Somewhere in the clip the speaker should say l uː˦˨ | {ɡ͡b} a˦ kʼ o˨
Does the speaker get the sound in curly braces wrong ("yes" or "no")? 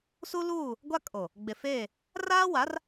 yes